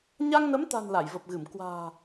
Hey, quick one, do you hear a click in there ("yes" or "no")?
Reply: no